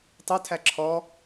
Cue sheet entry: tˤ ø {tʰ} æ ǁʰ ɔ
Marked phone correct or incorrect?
correct